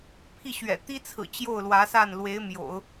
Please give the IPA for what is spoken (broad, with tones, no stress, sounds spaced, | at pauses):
pʰ i˥˩ ɕ ɥ ɛ̰˨˩ t̪ i˥ t͡sʰ ɹ̩˨˩ t͡ɕ j o˥˩ ʊ̯ l w ä˧˥ s a˥˩ n l w e˧˥ ɪ̯ m j o̰˨˩˦ ʊ̯